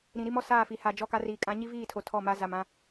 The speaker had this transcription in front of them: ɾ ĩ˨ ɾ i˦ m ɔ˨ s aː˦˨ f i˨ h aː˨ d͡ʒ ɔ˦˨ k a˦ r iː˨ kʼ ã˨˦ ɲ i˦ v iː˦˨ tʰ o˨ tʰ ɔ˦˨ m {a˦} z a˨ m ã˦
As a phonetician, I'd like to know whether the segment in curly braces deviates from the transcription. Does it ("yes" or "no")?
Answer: no